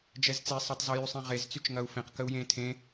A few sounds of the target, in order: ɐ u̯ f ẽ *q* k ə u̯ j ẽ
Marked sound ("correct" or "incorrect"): correct